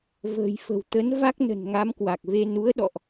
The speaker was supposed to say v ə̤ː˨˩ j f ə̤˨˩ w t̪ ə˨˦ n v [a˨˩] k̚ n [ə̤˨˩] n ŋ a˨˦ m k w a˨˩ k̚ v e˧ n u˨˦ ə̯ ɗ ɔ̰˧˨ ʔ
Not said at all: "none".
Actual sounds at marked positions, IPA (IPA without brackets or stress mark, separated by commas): a˦˥, ə̤˨˩